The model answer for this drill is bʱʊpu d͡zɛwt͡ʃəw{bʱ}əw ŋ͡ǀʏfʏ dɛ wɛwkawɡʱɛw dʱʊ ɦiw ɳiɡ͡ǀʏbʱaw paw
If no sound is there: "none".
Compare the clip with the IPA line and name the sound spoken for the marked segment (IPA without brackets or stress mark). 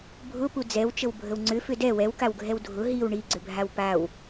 bʱ